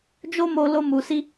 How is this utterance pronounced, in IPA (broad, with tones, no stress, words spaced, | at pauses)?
d͡ʒo˦mo˧ lo˧mu˨si˧